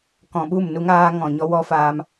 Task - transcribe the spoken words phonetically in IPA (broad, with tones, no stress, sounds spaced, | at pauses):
k ɔ̃˨ ɓ u˦˨ m n u˧ ŋ aː˧ ŋ ɔ̃˨ ɲ ɔ˦ w ɔ˦ f aː˧ m